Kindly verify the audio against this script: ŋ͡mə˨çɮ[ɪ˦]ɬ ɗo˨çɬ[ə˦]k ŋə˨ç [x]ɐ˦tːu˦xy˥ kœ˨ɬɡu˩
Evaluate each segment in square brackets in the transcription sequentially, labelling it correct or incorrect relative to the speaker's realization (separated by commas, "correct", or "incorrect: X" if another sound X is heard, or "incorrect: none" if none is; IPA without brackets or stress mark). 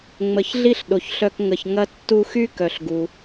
incorrect: i˦, incorrect: œ˦, incorrect: ŋ